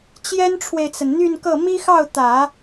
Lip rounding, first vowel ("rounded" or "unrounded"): unrounded